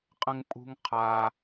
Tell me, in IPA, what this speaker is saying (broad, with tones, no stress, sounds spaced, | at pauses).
qʼ ə̃˦ ŋ pʼ ṳ˦ ŋ qʰ a˧